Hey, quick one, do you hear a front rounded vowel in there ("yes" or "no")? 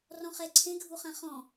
no